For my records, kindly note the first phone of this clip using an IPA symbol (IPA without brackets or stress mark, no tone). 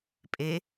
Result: pʼ